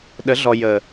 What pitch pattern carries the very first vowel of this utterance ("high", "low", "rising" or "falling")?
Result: rising